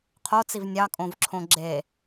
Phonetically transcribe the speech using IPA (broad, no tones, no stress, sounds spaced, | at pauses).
qʰ o t͡s i v nʲ ɑ kʼ õ v ǁʰ õ ɡ͡ǁ e